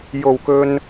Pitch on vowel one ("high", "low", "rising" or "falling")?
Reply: low